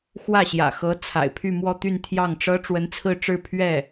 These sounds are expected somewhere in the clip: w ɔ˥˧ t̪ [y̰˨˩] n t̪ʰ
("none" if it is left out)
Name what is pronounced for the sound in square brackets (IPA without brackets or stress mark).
y˥˧